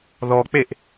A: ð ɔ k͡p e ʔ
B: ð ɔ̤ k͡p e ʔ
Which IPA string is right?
A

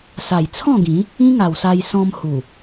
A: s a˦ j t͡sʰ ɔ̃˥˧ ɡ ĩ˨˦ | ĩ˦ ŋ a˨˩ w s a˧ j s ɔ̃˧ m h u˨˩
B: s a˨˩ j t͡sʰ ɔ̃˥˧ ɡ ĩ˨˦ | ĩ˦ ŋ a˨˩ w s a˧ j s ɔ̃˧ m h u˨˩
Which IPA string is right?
B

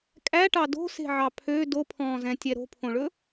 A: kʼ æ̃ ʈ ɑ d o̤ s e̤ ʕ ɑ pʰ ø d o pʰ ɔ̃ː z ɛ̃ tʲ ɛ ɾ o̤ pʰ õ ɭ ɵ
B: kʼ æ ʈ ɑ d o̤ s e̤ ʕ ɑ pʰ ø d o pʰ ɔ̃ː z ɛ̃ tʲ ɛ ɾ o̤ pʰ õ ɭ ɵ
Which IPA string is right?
B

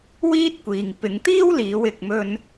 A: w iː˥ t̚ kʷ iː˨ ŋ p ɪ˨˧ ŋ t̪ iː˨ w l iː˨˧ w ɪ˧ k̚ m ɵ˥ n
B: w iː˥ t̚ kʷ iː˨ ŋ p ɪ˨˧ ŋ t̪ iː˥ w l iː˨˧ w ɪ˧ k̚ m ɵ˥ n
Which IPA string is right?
B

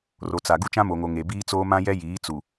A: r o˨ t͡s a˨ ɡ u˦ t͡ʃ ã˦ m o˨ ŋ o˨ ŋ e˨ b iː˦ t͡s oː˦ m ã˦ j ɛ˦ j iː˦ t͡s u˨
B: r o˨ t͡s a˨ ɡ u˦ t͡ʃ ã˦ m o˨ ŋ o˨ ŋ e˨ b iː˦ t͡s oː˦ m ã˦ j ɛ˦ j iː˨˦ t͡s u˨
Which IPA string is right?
B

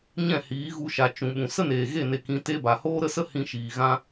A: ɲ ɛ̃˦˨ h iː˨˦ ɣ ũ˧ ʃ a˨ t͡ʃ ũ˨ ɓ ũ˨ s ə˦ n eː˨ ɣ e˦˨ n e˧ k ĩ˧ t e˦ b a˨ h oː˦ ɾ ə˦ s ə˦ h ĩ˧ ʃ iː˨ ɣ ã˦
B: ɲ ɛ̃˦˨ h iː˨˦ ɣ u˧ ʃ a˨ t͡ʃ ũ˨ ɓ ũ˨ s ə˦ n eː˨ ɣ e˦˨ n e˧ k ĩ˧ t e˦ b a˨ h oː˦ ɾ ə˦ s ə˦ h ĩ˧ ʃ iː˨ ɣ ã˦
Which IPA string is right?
B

